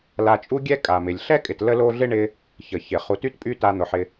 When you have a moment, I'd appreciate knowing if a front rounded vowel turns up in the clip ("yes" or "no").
yes